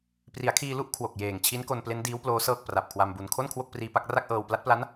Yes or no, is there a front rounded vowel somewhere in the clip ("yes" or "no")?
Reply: no